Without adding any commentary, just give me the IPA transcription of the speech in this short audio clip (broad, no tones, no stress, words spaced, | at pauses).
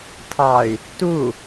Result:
tʰɑy̯ | tu